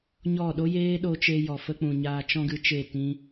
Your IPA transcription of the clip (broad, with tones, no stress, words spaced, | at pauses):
ɲɔ˦˨ ɗo˦jeː˦ɗo˧ t͡ʃe˧jɔ˨fə˧k͡pũ˨ ɲaː˧t͡ʃɔ̃˦ɡɨ˧t͡ʃe˦˨ tĩ˦